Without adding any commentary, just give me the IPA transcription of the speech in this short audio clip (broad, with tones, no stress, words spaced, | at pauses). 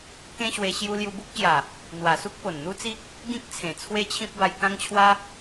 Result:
kẽ˦ɕwe˧ ɕju˧ lju˧bu˦k̚ɕja˨˩ | n̪wa˨˩su˦k̚ po˨˩nn̪u˦t͡si˦k̚ | ɡĩ˦k̚ t͡sʰẽ˨˩t͡sʰwe˦t͡ɕʰĩ˦p̚ ba˧jkã˦ŋt͡ɕʰwa˦